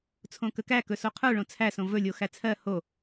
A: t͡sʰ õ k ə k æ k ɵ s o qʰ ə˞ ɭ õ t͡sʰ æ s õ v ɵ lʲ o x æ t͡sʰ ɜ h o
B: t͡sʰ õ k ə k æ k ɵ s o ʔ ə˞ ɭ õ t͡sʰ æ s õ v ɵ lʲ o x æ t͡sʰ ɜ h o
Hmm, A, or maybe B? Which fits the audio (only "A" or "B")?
A